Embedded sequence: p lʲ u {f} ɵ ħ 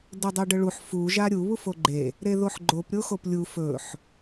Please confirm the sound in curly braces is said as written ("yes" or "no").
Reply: yes